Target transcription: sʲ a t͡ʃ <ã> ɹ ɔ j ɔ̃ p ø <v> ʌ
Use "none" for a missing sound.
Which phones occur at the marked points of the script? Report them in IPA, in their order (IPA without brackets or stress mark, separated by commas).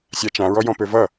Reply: ã, v